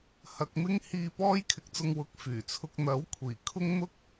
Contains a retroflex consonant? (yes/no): no